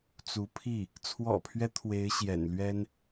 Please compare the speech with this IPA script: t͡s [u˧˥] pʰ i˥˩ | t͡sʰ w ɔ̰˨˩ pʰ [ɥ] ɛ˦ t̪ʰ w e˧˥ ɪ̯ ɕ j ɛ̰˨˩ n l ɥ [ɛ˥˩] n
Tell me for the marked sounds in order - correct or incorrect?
correct, correct, incorrect: ɛ˥

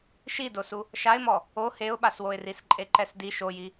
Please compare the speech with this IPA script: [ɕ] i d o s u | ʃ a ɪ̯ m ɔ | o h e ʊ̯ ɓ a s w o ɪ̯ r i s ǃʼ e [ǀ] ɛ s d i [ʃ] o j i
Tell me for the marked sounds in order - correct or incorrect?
incorrect: ʃ, incorrect: ǃ, correct

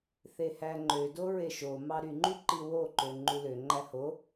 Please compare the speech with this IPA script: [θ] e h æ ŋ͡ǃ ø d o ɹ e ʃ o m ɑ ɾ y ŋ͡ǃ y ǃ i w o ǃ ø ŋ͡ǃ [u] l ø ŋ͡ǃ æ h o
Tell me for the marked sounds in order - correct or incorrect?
correct, correct

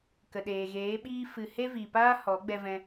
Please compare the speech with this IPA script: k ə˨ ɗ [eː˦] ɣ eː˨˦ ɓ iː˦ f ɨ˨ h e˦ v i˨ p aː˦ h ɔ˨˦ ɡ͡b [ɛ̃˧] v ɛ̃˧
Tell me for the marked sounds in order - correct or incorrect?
incorrect: eː˨, incorrect: ɛ˧

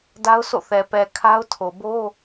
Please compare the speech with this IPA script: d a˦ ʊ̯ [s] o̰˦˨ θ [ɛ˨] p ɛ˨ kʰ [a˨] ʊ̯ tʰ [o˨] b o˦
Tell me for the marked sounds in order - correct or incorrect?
correct, correct, incorrect: a˦, correct

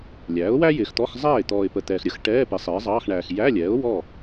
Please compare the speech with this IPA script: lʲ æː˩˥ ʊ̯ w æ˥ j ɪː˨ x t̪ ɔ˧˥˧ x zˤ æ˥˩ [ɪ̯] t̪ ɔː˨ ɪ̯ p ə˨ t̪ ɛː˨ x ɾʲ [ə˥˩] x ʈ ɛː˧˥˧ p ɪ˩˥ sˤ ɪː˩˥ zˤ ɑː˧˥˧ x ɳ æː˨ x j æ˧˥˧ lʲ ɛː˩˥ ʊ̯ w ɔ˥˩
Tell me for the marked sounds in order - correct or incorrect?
correct, incorrect: ə˩˥

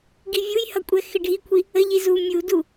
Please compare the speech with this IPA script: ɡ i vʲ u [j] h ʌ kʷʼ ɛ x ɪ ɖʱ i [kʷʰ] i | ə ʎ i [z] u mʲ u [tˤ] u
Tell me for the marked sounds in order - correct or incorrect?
correct, correct, correct, incorrect: d

